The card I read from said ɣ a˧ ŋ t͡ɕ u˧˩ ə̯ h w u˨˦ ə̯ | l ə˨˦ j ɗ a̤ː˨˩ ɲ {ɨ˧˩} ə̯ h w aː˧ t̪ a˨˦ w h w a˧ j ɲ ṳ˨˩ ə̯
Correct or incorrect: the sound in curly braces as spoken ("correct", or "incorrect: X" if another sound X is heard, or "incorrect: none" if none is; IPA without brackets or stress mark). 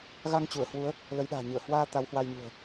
correct